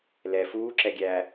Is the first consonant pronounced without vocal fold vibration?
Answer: no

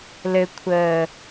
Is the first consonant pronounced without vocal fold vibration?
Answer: no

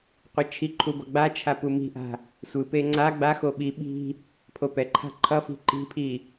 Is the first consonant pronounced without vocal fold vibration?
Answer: yes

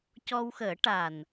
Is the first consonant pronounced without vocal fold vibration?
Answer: yes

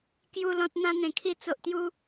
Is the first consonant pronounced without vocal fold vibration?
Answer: yes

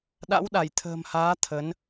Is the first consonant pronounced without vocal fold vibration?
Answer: no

